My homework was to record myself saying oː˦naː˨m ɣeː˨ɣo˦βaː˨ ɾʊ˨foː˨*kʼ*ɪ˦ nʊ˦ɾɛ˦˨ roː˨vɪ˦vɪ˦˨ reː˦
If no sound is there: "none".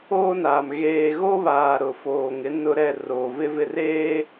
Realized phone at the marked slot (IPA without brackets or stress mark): ŋ